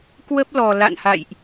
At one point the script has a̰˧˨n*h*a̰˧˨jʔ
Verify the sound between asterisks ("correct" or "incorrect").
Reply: correct